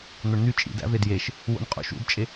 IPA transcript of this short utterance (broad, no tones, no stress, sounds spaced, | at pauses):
n̪ o ɳ n̪ y t͡ʃʼ ḭ d æ̰ v e d j e ʃ | w o̰ n qʼ ṵ ʃ ṵ d t͡ʃʼ e